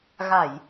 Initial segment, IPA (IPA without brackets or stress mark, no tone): ɣ